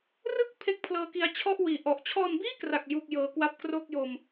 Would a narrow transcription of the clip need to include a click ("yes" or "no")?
no